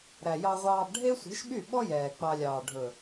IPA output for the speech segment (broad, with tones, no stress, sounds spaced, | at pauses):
ɾ æ˨ j ɑ˧ ʁʷ ɑː˧ b ɖʱ e˦ sʷ i̤˨˦ ʃ ɓ y˦˨ ɓ ɔ˦ j ɛː˨ k͡p ɑ˧ lʲ ɑː˨ ɖʱ ɵ˨